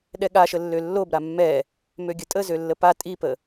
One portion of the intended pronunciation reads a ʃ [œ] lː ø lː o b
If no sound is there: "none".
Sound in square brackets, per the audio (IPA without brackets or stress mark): ə